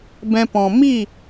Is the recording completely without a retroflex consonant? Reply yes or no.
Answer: yes